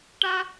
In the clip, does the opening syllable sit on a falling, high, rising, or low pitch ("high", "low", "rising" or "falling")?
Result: high